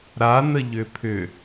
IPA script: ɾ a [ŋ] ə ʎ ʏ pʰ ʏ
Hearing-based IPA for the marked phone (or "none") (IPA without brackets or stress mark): n